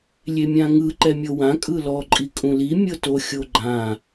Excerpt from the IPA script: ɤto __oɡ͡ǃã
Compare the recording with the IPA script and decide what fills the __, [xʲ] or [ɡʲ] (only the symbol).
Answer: xʲ